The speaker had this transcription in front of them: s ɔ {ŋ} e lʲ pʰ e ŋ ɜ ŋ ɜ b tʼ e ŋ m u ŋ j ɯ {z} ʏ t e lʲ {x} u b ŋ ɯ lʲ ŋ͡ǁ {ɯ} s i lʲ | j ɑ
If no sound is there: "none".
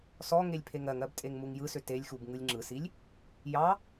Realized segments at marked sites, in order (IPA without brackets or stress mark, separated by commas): ŋ, s, x, ɯ